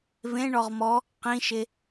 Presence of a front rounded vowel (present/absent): absent